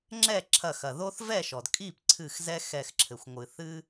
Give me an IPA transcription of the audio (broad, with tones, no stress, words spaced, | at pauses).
ŋ͡ǁɛ˥˩ǁʰɐ˧˩xɐ˩ðo˦θ vɛ˥˩ʃɔ˩dkʼi˥˩pǀʰɨ˧˩x zɛ˦xɛ˧˩xǁʰɘ˩xʷ ŋʷɨ˩ θɨ˦